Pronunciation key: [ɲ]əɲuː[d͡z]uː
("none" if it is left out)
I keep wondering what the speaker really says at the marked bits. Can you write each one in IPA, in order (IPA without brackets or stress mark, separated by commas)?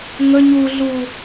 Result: ŋ, ɮ